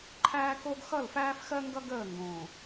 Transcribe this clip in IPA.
ǃʰæː˦ko˦ɡ xʌ˦˨lfæː˦fxɜ˦ŋɡʌ˦ ɡəː˦˨ŋɡõ˨

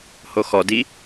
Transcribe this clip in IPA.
hoxɔdi

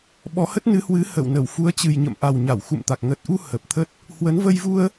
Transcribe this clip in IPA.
ɓɔ˨˦hə˦˥t̚nɨ˨˦hwɨ˨˦ hə̰˧˨wnə˧˩w fu˨˦ə̯t͡ɕɨ˨˩jɲə̰˧˨m ʔa˨˩wɲa˧˩wxṵ˧˨mt̪a˨˩k̚ ŋə˨˩t̚ʔu˧ hə˨˩p̚t̪ʰə˦˥t̚ | hwə˨˦nvə˧jvu˧ə̯

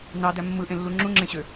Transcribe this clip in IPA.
nɑdæ mːɯʔẽlːu ŋ͡ǁũŋ͡ǁẽɕø

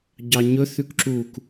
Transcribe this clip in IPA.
ɟɑɲɵ θʉkǁuk

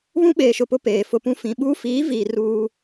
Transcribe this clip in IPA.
βũ˦ɓeː˨ʃʊ˨pʊ˦ peː˨fʊ˦pũ˦ fĩ˨ɓuː˦ fiː˨˦viː˨ ruː˦

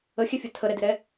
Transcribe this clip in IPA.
əxʲɛfʲə tʰəɾɛdɪɾɛ

